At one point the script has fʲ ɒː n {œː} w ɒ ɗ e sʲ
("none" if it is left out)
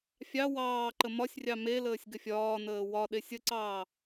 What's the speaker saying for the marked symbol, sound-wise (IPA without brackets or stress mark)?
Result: əː